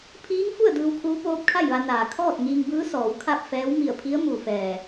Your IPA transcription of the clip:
pʰiː˧˥ŋfu˥˨ə̯ dɯː˧wkʰuː˧˥ poː˧˥p̚kʰa˥˨jʋa˧naː˩ kʰɔː˥˨t̚ ŋiː˧ŋbɯː˧˥ sɔː˩˧wkʰa˥˨p̚fɛː˧˥w mi˧˩ə̯pʰi˧˥ə̯ mu˩fɛː˩

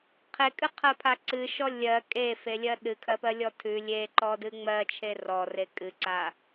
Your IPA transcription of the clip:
qʰekʼɨqʰɜpʰa ǀɨʃɔ lʲɜ kʼefelʲɜ ɗɨkʰɜpɜlʲɔ tʰʉ lʲeǃɔdɨ ŋ͡mɜt͡ʃʰe rɔre kʼɨǀa

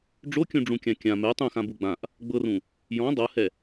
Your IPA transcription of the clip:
ɖ͡ʐokʲũɖ͡ʐũkʲã kʲã mɛ tˤũxãbu ɡ͡bãʔ | ɡ͡bɤrũ | jɔ̃ dˤɤhɛ

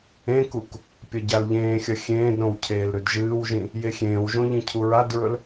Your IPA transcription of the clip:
ẽkuk | pʲɐɟalʎẽːxʲɐ xʲẽːdɾõw cʰeːlɾʉdʒɨːwʒĩ | jexʲẽːwʒõ ʎĩcʰuɹadɹɵl

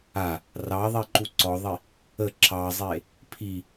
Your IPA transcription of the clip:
a | rɑðˤiǃu ǀɔðˤi | ə ǁɑzˤe | pʰi

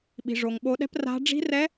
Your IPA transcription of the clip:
ɓi̤˩ʐo˩ŋɓo˨˦ɗɛ̤˦˥p ra̤˦˥ ɖ͡ʐi̤˦˥rɛ˦˥

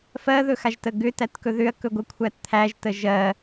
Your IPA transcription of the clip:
fɜðɵxaʒtə ɡʏtætkɵ ðʏɐ̯kɵɡʷəkʷʰæt t̪ʰæʒtə ʒɜ

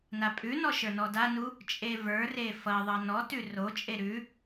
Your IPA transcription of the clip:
napʼʉnɔ ʃə˞nɔdanu | t͡ʃʼevə˞re fʌðˤʌ nɔtʉ rot͡ʃʼe ɾʉ

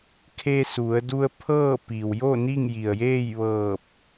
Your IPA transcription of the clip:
kʰe˧su˩˧ə̯ du˧ə̯pʰɤː˥˨ pi˩wjo˥˨ ni˥˨ŋji˩ə̯jeː˥˨jʋɤː˧˩p̚

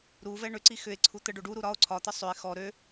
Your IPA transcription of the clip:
ɾuvɛ ɳʏǀi xʏe̯ǀʰu t̪ə ɖoɖuɾu ɾɒo̯ ǀʰɒt̪ə sˤøe̯ xɔ ɾø

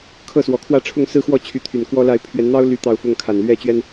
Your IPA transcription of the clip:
kʰɤ˥˨swɔ˨˩kʰwä˥˨ ʈ͡ʂʰʊ˥˨ŋsɹ̩˦xwɔ˥˨ t͡ɕʰy˨˦t̪ʰy˨˩n kwɔ˦la˥˨ɪ̯ pʰɥɛ˨˦nn̪ɑ˦ʊ̯ ly˦t̪ɑ˥˨ʊ̯ fʊ˥˨ŋkʰa˨˩n lɥɛ˦t͡ɕɥɛ˦n

